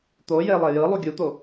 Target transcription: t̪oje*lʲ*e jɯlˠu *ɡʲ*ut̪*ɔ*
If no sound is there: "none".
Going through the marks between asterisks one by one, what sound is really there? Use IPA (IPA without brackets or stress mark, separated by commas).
lˠ, ɡʲ, o